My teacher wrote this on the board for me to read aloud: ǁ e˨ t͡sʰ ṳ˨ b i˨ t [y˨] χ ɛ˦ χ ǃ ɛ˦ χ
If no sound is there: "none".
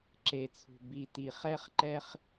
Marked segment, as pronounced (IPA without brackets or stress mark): i˨